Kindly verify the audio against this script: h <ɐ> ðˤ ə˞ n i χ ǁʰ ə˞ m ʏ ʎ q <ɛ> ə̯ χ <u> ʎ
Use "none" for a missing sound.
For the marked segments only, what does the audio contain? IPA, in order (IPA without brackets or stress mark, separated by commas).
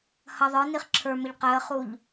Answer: ɐ, ɛ, u